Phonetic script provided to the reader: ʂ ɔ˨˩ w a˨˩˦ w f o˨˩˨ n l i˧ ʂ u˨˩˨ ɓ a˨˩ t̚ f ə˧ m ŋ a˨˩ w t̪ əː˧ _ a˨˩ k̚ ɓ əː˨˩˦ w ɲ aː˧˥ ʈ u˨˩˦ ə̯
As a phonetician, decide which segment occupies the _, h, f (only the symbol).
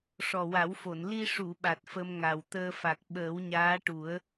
f